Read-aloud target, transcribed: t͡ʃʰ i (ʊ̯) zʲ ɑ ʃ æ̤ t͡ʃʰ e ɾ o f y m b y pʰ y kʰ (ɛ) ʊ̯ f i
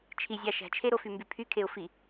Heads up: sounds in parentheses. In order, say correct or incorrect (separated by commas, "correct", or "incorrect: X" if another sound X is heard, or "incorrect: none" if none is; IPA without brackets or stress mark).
incorrect: none, incorrect: e